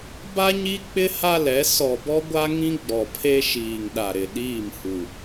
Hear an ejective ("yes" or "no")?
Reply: no